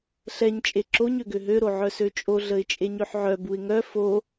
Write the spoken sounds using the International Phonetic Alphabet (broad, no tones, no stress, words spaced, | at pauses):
ɬɛɲ t͡ʃʼeǁoɲ øɡøɦø ɾoʕœsøt͡ʃʼo ɮəɪ̯t͡ʃʼeɲøħʕœ buɪ̯ŋœ fo